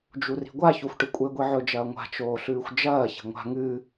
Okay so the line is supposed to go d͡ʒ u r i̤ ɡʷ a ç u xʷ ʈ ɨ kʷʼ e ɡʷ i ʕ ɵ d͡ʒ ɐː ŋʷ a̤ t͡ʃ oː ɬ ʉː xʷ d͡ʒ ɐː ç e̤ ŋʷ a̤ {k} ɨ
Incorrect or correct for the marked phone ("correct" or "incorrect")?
incorrect